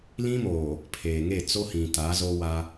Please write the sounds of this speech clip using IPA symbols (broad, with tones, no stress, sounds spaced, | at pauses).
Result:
l ĩ˦ m oː˨ | pʰ eː˨ ŋ e˦˨ t͡s o˦ h ĩ˨ t a˨˦ z o˦ w a˦